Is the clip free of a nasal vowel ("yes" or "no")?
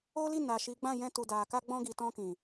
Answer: no